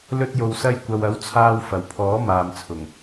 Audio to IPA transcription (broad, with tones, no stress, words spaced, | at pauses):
lɵ˧t̚jo˨w sɐ˧jkʷɐ˨wɐ˨˥w t͡sʰaː˧wfɐ˨˩wpʰɔː˨˥ maː˨mt͡sʰʊ˨˩ŋ